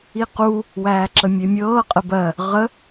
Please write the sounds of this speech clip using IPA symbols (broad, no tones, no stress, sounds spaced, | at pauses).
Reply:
i q u | w æː ǁ ə mʲ e mʲ ɤː qʼ ə b ɜ | ʁ ə